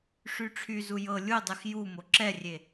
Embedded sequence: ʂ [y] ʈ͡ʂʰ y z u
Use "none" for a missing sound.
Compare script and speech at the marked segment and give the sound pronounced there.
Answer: y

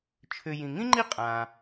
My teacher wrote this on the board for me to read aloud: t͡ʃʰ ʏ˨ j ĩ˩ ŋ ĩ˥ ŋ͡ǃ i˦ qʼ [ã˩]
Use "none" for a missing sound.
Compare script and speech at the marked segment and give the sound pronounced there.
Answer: ã˩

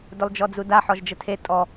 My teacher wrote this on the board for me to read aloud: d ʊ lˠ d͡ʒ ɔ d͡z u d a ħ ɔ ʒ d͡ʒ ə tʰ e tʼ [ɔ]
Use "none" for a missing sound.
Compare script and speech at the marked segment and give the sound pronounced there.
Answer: ɔ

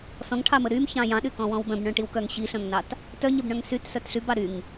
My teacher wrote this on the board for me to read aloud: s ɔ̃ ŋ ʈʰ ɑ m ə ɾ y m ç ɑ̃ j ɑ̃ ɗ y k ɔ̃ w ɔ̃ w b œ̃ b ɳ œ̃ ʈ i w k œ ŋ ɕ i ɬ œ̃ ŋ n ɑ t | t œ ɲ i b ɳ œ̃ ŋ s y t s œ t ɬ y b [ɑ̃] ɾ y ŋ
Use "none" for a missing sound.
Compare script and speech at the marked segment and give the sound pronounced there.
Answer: ɑ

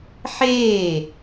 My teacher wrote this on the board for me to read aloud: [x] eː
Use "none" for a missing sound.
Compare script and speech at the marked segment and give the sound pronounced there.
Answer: ħ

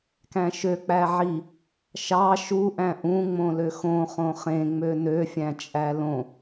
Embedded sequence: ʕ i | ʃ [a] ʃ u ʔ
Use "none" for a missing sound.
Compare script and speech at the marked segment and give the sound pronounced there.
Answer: ɑ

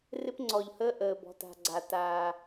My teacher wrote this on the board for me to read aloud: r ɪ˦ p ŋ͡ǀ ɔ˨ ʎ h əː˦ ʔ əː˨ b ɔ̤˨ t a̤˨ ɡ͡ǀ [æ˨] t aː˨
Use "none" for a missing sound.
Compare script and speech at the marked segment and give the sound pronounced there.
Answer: a˨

